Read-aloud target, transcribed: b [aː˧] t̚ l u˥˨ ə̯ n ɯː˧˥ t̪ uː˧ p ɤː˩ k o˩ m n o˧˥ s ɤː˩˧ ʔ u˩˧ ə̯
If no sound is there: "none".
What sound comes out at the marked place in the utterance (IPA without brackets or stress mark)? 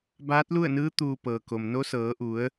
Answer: aː˧˥